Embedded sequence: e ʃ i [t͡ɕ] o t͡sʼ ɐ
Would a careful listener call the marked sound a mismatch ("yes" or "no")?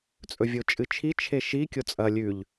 yes